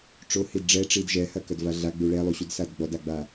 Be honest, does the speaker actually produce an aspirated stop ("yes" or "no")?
no